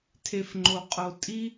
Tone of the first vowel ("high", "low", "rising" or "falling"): low